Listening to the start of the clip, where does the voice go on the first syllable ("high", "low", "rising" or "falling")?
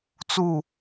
falling